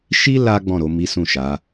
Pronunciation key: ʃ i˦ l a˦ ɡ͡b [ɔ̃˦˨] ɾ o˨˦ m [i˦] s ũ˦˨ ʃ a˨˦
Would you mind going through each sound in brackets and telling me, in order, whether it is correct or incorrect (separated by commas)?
correct, correct